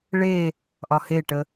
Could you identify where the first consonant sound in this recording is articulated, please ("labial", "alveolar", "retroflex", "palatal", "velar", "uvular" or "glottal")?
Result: retroflex